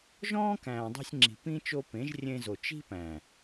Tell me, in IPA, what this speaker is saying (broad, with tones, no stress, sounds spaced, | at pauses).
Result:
ʒ ɔ̃ː˦ k æ̃ː˨ dˤ i̤˧ sʲ ŋ͡ǁ i̤˨ p ĩ˦ t͡ʃ o˧ p ẽ˨˦ ʒ rʲ ẽ˧ z o˨ t͡ʃ i̤˦ p æ̃˨